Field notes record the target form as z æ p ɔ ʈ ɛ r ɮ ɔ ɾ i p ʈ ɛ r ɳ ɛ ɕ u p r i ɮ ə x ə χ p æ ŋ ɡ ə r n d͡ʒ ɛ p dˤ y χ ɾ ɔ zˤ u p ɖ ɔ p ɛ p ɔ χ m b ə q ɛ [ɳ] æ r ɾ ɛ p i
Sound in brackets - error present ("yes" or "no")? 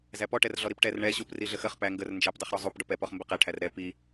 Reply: yes